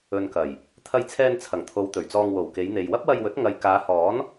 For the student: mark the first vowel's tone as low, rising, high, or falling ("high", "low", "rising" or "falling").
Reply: low